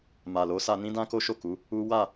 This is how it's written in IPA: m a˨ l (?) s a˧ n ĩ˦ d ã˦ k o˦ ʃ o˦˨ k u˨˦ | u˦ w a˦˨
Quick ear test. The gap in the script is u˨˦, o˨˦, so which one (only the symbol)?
o˨˦